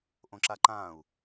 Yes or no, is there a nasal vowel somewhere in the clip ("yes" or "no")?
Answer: yes